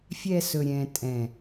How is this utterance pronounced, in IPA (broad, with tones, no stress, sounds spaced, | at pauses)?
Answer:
fʲ ɛ˧ s ɵ˨ ɾʲ ɛ̃˨ tʼ ɛ̃˨